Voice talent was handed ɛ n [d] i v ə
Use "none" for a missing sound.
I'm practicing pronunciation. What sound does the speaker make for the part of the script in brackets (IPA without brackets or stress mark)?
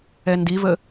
d